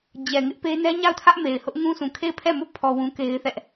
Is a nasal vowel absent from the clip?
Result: no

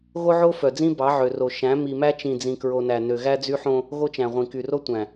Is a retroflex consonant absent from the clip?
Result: yes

